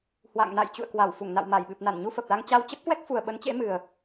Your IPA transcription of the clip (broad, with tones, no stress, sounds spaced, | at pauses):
h w a̰˧˨ ŋ n a̰˧˨ j t͡ɕ ṵ˧˨ ə̯ k w a˧˩ w f u˧˩ ŋ n a̰˧˨ w m a˧˩ j ɓ ɨ˨˩ p̚ n a˧˩ n ɲ u˧ f ə˨˩ p̚ l a˧ ŋ t͡ɕ a˧ w t͡ɕ ə˦˥ p̚ k w ɛ˦˥ k̚ f u˨˩ ə̯ ɓ ə˨˦ n t͡ɕ ḛ˧˥ m ɨ˨˩ ə̯